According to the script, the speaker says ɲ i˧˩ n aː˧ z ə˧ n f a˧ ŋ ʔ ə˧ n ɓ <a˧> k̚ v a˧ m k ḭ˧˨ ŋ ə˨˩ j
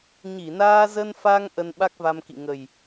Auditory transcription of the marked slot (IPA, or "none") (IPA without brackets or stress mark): a˦˥